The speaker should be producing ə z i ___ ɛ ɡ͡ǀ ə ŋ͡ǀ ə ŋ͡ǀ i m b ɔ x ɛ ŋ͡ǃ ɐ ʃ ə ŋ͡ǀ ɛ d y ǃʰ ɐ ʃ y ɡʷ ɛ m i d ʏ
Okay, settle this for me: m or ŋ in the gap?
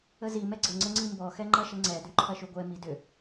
m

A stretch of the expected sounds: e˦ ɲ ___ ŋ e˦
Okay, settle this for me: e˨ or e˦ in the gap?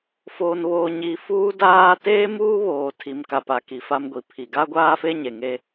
e˨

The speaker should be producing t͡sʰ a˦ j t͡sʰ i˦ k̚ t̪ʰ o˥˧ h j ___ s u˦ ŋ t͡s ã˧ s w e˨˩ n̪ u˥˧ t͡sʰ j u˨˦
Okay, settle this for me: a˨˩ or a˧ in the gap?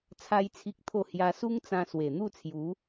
a˧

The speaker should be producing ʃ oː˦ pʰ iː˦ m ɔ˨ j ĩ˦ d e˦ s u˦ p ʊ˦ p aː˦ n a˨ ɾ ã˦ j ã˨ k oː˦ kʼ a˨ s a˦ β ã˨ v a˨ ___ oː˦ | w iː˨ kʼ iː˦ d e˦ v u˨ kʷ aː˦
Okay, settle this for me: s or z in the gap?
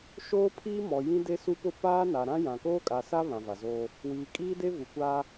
z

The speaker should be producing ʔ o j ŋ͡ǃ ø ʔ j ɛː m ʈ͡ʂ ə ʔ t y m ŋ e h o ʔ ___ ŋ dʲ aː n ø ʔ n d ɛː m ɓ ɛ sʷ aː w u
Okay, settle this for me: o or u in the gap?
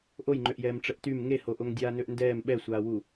o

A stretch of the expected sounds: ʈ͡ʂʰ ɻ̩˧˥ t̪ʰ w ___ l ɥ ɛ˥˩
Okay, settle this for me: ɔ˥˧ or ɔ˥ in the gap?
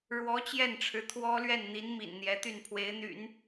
ɔ˥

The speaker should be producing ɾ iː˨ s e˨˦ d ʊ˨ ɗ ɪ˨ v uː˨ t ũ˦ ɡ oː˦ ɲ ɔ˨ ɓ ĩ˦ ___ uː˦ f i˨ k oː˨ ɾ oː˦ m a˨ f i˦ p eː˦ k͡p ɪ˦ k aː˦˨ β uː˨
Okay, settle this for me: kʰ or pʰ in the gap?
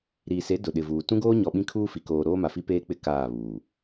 kʰ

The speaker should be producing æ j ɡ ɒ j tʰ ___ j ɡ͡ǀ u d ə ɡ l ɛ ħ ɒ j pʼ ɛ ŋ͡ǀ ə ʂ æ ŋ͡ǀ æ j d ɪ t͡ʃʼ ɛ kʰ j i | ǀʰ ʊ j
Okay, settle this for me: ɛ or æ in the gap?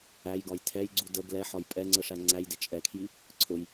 ɛ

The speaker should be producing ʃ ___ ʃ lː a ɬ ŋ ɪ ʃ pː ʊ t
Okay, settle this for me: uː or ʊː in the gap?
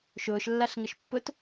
ʊː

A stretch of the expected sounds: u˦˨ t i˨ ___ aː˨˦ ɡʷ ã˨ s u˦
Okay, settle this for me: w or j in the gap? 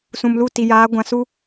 j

